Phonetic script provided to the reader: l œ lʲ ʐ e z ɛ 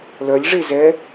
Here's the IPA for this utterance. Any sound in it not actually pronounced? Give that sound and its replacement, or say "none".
none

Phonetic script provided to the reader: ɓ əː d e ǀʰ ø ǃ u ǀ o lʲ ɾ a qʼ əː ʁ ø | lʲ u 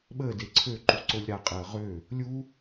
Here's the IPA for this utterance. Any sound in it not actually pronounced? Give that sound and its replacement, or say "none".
none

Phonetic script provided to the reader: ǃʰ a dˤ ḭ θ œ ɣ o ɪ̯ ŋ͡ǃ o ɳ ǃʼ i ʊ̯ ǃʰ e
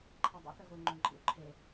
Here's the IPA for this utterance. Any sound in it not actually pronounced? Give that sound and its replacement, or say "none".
i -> ḭ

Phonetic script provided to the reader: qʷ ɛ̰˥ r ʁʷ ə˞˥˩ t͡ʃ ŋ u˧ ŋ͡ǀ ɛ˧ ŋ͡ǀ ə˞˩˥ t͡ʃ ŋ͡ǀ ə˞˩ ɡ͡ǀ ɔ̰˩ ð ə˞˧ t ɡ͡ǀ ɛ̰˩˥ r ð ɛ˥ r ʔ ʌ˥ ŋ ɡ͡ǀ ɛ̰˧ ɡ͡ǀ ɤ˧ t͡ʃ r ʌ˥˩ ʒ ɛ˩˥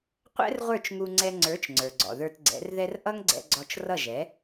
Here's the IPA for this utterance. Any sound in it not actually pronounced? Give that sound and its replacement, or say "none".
ɤ˧ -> ɔ˧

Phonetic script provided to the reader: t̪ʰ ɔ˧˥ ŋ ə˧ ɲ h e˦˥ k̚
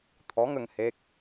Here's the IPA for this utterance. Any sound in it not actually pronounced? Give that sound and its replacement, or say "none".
ɲ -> ŋ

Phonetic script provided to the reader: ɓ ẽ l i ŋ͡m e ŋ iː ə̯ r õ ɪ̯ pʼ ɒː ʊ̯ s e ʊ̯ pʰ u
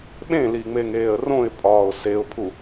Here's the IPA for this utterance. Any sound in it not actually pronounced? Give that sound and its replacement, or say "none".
iː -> eː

